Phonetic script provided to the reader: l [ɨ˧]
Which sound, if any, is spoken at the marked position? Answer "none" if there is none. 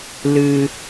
ɨ˧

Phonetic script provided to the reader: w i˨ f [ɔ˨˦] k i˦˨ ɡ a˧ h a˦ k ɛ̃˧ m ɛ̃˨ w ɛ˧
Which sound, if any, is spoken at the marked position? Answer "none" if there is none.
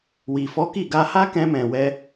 ɔ˨˦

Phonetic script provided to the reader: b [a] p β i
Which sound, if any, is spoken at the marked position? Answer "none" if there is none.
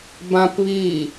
ã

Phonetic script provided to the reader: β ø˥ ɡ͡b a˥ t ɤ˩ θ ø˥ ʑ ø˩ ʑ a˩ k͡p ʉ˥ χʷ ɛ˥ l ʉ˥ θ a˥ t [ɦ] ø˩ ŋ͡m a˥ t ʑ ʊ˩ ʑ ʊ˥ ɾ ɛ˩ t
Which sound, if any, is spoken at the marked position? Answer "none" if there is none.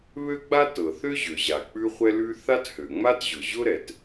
h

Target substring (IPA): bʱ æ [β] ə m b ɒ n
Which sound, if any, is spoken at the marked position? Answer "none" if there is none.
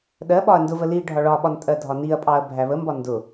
β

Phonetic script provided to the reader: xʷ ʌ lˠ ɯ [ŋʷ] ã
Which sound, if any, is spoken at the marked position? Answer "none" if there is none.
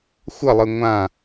ŋʷ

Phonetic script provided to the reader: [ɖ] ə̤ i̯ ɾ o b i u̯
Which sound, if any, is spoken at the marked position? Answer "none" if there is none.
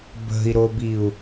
b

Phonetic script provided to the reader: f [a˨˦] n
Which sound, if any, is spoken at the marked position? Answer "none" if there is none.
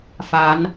a˨˦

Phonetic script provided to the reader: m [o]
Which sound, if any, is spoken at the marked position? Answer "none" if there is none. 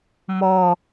ɔ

